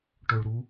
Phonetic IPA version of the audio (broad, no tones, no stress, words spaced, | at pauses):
ʈoɭ ɾu